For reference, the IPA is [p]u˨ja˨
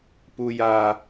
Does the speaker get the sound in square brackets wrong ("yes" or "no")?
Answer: no